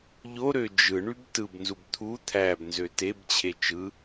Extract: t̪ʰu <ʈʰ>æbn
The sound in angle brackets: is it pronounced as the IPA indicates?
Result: no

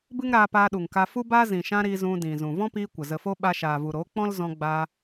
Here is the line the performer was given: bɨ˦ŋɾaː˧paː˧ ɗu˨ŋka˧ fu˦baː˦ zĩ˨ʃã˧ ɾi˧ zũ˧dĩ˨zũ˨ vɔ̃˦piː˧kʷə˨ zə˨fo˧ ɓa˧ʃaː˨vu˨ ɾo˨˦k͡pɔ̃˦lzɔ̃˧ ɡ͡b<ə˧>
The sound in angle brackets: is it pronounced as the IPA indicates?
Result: no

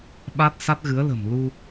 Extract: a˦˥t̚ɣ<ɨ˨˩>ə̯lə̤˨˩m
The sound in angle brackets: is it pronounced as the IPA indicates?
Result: no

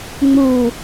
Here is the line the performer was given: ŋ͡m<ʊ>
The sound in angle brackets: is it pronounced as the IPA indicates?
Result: no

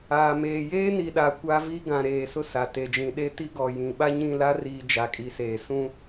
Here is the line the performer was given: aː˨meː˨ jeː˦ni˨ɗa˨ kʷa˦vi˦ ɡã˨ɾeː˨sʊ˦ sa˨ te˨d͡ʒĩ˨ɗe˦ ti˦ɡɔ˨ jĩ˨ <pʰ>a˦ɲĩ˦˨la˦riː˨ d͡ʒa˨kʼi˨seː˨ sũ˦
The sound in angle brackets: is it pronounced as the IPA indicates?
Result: no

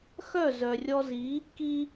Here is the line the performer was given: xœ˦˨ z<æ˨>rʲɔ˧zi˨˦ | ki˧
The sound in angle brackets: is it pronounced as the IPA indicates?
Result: no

